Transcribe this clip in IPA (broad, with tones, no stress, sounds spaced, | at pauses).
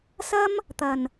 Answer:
s ɐ˥ m | t̪ ɐ˨˩ n